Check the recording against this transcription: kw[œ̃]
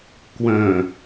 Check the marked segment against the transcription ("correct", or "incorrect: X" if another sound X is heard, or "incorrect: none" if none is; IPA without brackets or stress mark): correct